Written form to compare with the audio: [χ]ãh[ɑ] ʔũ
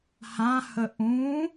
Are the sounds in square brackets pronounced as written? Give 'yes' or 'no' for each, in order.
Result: no, no

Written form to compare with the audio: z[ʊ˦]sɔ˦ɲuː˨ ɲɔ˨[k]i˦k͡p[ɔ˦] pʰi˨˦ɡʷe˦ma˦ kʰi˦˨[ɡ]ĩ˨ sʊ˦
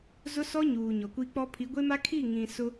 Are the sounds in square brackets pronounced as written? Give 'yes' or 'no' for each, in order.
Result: yes, no, yes, no

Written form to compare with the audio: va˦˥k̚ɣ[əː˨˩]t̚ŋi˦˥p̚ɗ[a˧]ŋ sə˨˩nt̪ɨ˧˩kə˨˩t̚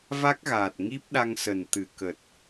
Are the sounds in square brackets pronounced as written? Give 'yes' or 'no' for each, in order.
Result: no, yes

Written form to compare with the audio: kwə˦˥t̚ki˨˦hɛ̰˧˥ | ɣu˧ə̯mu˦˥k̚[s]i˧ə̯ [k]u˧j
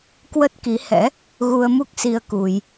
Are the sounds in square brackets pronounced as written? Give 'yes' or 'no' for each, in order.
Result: yes, yes

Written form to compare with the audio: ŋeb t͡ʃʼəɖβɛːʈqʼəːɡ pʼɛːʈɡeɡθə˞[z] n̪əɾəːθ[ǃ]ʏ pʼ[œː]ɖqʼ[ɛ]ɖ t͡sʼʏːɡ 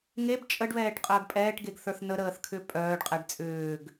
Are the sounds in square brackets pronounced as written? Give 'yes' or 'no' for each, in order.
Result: no, no, yes, yes

